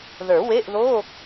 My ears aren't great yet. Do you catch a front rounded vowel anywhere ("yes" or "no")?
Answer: no